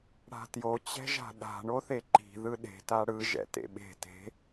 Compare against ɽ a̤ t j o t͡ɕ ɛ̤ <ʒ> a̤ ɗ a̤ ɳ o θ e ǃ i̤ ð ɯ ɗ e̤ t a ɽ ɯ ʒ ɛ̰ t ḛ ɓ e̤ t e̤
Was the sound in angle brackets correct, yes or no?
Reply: yes